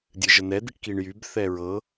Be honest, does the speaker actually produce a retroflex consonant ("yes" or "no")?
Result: yes